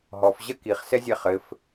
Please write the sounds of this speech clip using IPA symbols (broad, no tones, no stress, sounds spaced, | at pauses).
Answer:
ɦ ɔ f ʑ ɐ k i χ s ɛ zʲ ɛ χ ɘ f